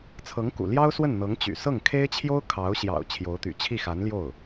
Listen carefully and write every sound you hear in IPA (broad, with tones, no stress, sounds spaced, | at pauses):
t͡sʰ ɤ˧˥ ŋ k ṵ˨˩ l j ɑ˥ ʊ̯ s w ə˥˩ n n̪ ɤ˧˥ ŋ t͡ɕ y̰˨˩ s ɤ˥˩ ŋ kʰ e˥ ɪ̯ t͡ɕʰ j o˥ ʊ̯ kʰ ɑ˧˥ ʊ̯ ɕ j ɑ̰˨˩ ʊ̯ t͡ɕʰ j o˧˥ ʊ̯ t̪ y̰˨˩ t͡ɕʰ i˥˩ x a˧˥ n l j o˥˩ ʊ̯